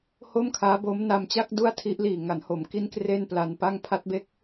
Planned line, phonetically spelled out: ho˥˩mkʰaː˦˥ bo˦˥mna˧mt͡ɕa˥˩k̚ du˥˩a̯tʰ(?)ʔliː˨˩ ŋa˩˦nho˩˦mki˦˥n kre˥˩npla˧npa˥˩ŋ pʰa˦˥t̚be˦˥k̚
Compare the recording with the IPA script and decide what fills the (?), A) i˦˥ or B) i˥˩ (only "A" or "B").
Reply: A